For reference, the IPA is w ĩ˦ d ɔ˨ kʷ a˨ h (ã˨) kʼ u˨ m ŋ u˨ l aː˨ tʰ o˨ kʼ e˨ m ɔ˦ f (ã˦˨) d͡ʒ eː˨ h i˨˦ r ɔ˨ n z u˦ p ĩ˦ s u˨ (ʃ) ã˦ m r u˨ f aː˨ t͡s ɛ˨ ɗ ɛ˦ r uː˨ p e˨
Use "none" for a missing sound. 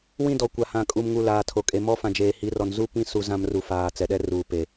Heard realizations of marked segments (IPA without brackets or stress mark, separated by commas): ã˨, ã˨, z